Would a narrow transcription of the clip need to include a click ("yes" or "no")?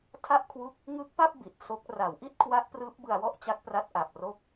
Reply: no